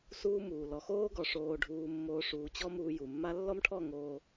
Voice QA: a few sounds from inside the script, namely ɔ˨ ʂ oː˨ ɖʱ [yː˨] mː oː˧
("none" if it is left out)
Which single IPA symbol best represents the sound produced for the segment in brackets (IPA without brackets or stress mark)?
uː˨